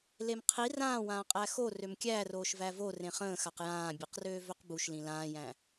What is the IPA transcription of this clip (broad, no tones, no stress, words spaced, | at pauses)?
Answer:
lemqʰi rãːwãː qʼæxo rømkʲæroːʃ vævo rẽχə̃ːxaq jãːbʲeqrøː vøqbuʃlĩ lãːjæ̃